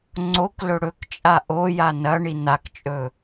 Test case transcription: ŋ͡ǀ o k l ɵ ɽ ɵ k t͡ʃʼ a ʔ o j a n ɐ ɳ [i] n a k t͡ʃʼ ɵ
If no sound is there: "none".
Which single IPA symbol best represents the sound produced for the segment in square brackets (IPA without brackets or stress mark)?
i